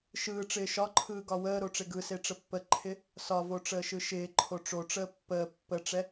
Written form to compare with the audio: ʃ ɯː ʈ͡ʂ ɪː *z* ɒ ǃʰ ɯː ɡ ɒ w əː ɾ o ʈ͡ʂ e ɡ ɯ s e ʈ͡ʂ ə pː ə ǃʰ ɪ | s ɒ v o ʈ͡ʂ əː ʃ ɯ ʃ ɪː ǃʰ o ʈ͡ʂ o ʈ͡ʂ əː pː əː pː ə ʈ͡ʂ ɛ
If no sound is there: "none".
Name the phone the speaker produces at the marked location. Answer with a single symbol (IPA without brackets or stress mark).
ʃ